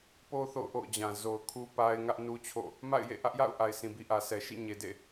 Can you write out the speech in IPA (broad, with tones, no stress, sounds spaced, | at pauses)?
p o˦ θ o̰˦˨ ʊ̯ ʔ o̰˦˨ ʊ̯ d͡ʑ ã˨ z o˨ ʊ̯ kʰ u˦ p a˦ ɪ̯ ŋ ä˦ ʔ n u˦ t͡ɕʰ o̰˦˨ | m a̰˦˨ ɪ̯ j ḛ˦˨ ʔ ä˦ ʔ j a̰˦˨ ʊ̯ ʔ a˨ ɪ̯ s ĩ˨ b i˦ ʔ ä˨ s ɛ˨ ʃ ḭ˦˨ ɲ e˨ d ḛ˦˨